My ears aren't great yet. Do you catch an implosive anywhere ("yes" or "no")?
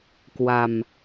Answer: no